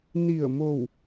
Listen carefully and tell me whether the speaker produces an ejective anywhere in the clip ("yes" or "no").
no